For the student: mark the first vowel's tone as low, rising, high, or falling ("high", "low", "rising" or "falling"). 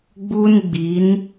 high